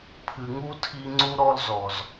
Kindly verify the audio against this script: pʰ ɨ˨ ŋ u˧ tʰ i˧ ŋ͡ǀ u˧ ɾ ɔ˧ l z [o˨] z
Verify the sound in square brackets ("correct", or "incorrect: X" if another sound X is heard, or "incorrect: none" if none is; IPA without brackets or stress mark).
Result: incorrect: ɔ˨